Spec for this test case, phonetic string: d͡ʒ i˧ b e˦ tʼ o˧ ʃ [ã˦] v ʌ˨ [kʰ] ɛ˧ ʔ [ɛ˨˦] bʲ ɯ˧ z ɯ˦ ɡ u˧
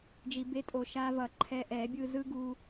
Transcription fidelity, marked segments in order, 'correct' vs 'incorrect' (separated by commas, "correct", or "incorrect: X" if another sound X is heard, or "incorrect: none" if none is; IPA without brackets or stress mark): incorrect: a˦, incorrect: ǃʰ, correct